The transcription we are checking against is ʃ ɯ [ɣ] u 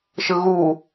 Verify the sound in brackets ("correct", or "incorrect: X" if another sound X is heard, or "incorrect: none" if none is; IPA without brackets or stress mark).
correct